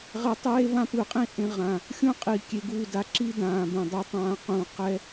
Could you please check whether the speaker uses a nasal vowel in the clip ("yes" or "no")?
yes